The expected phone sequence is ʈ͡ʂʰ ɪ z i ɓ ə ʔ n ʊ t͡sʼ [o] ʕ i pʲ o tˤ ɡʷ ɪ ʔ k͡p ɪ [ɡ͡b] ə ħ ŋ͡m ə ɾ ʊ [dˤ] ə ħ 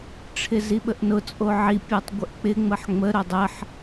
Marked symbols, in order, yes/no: yes, no, yes

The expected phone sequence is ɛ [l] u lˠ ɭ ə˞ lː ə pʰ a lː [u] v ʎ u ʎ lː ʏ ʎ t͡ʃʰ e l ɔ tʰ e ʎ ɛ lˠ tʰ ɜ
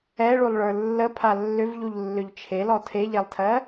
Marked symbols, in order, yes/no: no, no

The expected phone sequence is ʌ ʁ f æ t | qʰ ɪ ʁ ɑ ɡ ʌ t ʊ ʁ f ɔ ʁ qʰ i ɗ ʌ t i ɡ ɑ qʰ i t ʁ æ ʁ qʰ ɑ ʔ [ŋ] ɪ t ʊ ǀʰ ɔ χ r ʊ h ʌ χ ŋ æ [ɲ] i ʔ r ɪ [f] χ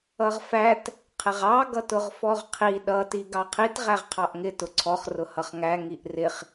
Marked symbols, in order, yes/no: yes, no, no

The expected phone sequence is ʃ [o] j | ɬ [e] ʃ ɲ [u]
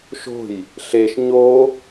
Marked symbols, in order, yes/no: no, yes, no

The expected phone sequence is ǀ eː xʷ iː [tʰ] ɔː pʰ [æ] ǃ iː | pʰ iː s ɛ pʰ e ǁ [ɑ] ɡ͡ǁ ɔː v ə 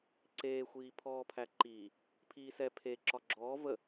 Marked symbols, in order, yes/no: no, yes, no

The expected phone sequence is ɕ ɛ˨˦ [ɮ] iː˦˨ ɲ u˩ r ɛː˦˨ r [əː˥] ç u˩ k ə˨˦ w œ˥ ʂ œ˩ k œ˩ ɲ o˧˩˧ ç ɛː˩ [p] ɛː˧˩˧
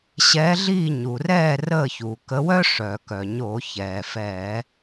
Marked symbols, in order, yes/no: yes, no, no

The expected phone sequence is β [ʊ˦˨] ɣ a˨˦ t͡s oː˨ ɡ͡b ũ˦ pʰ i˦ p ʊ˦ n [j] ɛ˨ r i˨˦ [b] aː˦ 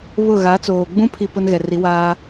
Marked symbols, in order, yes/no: yes, no, no

